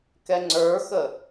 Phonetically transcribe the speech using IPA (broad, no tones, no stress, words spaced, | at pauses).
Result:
kɛŋ͡ǀə˞xə